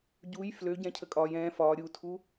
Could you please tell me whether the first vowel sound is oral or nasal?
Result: oral